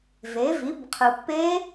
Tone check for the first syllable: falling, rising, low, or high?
rising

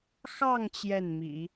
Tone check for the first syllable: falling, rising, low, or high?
falling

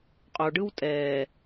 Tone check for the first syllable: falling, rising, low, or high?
low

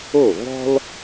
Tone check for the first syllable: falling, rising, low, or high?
falling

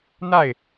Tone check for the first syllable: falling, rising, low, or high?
falling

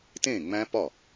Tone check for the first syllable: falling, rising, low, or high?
falling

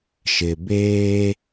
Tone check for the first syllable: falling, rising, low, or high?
low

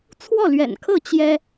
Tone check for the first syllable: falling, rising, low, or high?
falling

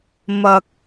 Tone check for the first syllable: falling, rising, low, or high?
low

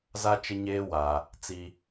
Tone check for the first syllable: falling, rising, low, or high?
high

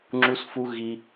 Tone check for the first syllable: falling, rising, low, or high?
high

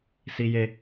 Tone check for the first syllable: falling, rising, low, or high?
high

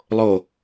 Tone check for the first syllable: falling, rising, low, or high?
falling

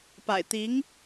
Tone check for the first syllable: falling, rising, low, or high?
low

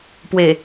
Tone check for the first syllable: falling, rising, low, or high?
low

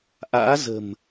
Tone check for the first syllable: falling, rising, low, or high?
rising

